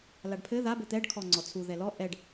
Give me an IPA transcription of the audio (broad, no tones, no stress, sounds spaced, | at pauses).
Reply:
l a ɖ pʰ ɘ ð a b ɘ t̪ ɛ ɖ kʰ ɔ ŋ͡ǀ ɔ t͡sʰ u ð ɛ l ɔ ʔ ɛ ɖ